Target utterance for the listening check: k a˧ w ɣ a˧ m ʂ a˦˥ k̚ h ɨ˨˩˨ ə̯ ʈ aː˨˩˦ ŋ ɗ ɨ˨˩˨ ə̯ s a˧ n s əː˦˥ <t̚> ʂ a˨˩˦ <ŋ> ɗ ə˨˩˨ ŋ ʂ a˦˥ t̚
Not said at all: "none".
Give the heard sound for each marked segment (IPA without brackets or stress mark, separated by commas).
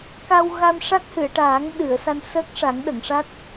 k̚, ŋ